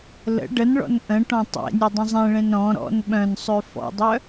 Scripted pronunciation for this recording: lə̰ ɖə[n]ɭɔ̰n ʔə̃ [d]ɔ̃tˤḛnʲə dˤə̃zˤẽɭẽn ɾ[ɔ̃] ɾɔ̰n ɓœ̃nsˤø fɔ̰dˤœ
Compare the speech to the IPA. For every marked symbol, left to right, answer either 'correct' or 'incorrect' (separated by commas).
correct, incorrect, correct